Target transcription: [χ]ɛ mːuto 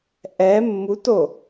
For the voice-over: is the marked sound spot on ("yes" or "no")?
no